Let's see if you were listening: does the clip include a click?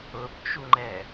yes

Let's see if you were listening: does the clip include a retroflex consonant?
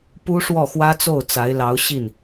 yes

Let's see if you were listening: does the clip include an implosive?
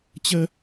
no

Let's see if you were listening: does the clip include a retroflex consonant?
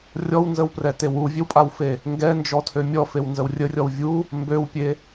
no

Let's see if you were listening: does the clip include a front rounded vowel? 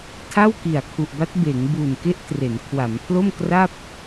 no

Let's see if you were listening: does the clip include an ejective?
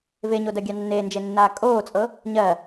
yes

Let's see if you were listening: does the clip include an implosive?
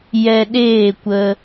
yes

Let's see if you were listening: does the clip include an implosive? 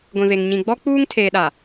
yes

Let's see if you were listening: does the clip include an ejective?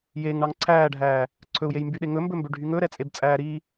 yes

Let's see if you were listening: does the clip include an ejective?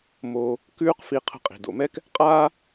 yes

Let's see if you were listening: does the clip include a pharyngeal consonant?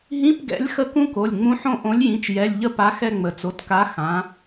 yes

